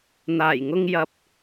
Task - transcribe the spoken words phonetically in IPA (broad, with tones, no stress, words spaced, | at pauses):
n̪aː˨˩jŋʊ˧ŋjɐ˨p̚